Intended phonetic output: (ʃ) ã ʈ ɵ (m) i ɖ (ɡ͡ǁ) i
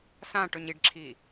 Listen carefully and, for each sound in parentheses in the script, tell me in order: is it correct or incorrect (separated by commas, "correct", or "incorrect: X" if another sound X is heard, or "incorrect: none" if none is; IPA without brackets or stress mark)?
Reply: incorrect: s, incorrect: ɲ, incorrect: ǁʰ